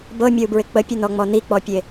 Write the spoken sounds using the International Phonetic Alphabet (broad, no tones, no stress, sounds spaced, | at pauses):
b ɤ mʲ ɤ u̯ b ɹ ɪ k͡p ə pʲ œ n ɔ ŋ͡m ɔ n i k͡p ɔ pʲ e